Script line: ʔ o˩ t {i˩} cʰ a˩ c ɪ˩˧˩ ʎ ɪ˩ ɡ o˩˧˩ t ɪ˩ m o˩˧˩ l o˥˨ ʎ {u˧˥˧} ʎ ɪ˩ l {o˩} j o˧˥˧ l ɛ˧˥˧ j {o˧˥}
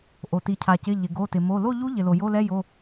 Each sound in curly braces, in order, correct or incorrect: correct, incorrect: u˧˥, correct, incorrect: o˩˧˩

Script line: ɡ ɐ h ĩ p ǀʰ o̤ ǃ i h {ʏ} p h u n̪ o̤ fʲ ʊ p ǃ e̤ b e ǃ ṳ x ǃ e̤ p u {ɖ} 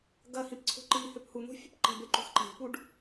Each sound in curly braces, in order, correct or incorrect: correct, correct

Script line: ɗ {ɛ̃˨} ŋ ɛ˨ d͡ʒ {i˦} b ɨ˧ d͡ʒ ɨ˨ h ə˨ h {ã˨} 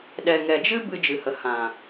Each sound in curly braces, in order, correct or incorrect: incorrect: ɛ˨, incorrect: ɨ˦, correct

